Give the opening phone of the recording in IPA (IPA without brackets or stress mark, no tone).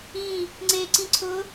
ĩ